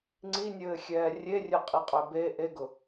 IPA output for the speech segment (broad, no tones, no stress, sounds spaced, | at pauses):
ŋ͡ǀ i nʲ ɘː xʲ ɛː rʲ e rʲ ø qʼ i qʼ ø b e ʔ e ɡ ʊ